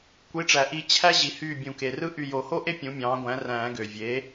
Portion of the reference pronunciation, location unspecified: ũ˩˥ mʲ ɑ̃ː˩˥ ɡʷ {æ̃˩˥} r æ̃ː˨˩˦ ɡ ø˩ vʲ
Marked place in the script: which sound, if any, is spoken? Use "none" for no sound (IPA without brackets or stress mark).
æ̃˩˥